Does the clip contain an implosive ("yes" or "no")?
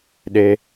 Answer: yes